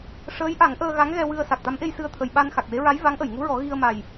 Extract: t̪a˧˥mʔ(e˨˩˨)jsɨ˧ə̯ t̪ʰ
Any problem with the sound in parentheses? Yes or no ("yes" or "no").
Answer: yes